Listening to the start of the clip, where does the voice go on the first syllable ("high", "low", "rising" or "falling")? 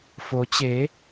rising